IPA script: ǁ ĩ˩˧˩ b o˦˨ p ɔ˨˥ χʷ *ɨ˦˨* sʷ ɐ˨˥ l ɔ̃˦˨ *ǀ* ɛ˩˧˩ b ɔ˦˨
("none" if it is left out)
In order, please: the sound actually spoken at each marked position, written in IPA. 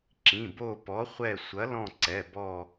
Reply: ɛ˦˨, ǀ

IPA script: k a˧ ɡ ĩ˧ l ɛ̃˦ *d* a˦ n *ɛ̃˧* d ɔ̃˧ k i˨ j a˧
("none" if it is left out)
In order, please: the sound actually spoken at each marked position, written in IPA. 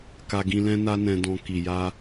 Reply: n, ɛ̃˧

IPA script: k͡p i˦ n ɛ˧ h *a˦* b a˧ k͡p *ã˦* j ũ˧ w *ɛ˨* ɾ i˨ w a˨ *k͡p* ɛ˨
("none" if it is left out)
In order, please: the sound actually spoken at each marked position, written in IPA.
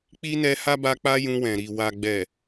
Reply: a˦, a˦, ɛ̃˨, ɡ͡b

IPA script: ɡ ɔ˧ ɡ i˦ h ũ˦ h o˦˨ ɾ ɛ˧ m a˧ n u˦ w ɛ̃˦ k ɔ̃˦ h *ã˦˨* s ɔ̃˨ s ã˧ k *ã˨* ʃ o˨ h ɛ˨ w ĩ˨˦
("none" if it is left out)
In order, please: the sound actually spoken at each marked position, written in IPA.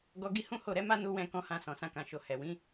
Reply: ã˧, ã˨

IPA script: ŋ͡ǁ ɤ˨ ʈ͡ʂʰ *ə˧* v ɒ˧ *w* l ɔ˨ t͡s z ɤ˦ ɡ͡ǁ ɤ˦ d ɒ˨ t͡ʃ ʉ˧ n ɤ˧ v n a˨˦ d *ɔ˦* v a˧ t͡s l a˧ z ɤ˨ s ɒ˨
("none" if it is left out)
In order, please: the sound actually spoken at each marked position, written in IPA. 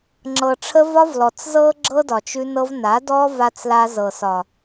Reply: ə˧, v, ɔ˦

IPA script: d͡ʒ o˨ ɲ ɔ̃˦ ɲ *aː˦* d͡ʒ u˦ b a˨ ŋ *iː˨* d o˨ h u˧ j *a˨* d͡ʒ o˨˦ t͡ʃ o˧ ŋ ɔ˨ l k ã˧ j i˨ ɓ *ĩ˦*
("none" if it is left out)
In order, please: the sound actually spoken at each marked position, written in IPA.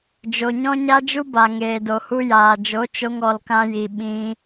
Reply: a˦, eː˨, aː˨, ĩ˧

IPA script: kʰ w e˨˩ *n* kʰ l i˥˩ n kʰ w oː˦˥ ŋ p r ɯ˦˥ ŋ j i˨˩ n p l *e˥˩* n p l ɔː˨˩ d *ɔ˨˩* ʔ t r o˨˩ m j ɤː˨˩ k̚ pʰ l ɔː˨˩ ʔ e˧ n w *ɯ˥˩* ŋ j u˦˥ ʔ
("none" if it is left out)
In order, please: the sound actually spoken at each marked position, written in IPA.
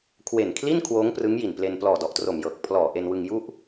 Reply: n, e˧, ɔ˨˩, ɯ˧

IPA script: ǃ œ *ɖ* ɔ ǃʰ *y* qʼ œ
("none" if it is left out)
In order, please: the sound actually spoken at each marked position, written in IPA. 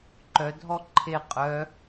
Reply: dʱ, e

